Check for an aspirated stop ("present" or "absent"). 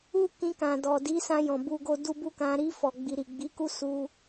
absent